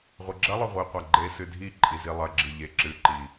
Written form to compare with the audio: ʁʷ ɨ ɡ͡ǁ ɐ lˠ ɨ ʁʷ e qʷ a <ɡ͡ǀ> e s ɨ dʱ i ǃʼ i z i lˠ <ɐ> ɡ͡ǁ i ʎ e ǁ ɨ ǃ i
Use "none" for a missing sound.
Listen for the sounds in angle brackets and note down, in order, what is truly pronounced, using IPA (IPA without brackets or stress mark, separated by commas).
ɡ͡ǃ, ɐ